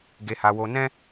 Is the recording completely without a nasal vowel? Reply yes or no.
no